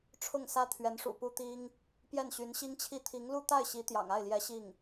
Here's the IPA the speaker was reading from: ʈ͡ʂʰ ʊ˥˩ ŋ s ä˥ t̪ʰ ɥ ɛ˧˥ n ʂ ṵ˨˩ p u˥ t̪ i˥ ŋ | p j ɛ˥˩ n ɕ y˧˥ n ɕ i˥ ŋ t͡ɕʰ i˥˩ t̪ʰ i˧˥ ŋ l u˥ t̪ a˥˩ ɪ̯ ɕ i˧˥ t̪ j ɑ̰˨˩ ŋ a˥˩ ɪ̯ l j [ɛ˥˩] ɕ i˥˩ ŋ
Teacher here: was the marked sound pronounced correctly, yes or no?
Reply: no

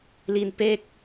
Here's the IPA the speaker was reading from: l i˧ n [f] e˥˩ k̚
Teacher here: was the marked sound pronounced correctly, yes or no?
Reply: no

